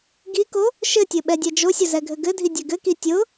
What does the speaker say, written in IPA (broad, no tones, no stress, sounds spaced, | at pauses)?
ɡ i k o | ʃ ɘ tʲ ɘ ɓ ɛ dʲ ɛ d͡ʒ o sʲ ʊ z ɛ ɡʱ ɘ ɡ ɘ dʱ i dʲ ɘ ɡ ɘ k i tʲ ʊ